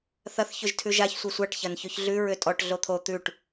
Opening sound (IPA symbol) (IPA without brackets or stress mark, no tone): θ